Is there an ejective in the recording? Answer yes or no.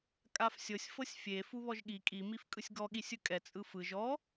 yes